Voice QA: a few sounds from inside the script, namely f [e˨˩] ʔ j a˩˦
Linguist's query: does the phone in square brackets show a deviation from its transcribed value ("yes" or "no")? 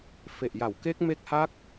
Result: no